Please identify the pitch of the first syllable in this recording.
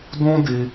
high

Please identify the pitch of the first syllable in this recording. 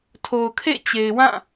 low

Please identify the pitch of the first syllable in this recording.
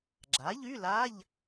rising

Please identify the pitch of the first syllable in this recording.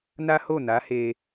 high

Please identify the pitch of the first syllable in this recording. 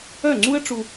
falling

